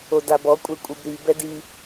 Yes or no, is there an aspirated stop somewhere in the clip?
no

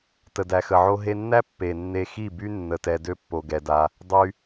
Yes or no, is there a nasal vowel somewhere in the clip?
no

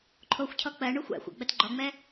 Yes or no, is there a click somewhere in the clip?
yes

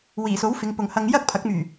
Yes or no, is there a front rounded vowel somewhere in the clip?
yes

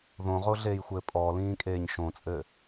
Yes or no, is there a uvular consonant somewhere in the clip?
yes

